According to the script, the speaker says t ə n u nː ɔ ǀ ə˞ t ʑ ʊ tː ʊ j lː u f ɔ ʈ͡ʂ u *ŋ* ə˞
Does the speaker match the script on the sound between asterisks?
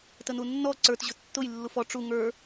yes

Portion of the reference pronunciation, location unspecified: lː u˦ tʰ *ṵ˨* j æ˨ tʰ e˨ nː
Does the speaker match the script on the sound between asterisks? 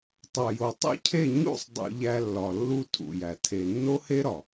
yes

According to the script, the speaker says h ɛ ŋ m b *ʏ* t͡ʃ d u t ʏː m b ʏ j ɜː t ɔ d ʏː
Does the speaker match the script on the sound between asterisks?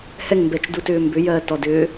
no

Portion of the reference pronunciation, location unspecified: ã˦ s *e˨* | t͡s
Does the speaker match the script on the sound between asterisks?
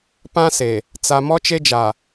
yes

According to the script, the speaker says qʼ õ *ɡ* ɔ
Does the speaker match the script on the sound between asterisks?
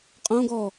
yes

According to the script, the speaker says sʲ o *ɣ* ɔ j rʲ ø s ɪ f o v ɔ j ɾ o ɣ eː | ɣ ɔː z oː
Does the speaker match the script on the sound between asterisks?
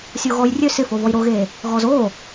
yes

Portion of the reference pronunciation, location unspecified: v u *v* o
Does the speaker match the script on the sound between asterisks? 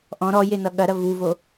yes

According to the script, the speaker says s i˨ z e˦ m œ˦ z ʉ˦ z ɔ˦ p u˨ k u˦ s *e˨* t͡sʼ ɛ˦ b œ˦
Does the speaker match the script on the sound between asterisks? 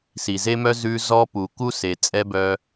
yes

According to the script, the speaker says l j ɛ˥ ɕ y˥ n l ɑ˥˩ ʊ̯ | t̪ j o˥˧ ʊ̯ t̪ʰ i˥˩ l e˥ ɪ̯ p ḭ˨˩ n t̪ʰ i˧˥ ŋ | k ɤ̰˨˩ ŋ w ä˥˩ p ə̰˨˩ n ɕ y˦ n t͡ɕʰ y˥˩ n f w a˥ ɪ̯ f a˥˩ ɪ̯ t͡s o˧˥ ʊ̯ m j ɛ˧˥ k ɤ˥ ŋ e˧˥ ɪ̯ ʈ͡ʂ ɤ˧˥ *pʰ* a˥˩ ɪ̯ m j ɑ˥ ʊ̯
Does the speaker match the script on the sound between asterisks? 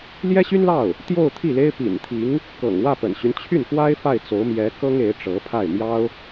yes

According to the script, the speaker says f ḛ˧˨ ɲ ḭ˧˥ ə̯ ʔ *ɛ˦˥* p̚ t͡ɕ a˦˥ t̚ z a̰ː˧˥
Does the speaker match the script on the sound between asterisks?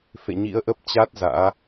no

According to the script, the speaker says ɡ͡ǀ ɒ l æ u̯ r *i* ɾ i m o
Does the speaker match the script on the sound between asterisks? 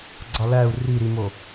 yes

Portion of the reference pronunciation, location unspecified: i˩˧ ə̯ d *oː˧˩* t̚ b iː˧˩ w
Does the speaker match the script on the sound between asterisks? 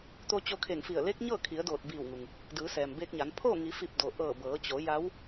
yes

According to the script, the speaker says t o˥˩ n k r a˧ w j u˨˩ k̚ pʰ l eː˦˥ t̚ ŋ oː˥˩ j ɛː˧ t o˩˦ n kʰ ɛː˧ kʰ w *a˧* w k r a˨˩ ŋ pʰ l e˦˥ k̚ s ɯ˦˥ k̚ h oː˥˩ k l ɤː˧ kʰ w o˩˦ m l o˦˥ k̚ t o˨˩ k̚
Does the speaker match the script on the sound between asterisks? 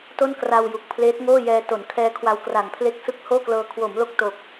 yes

